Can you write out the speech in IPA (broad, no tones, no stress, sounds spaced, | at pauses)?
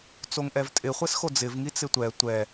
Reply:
t͡s o ŋ ʔ ɛ v tʼ ɪ χʷ ɛ s x o d͡z ɪ v ŋ i t͡s ɪ tʷ ɛ tʷ ɛ